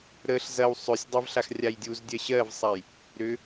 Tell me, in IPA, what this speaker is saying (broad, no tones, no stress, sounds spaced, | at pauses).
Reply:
ɾ ə ɬ z ɐ w sˤ ʏ sʲ dˤ ɐ v ɬ a x rʲ a j dʲ u z dʲ ɜ ɕ ɜ v sˤ a j | ɾ ʏ